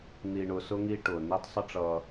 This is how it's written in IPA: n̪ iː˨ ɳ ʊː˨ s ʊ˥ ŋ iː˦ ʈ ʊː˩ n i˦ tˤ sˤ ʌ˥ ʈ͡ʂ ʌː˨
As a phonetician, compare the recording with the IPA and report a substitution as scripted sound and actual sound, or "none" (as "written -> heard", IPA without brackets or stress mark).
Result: none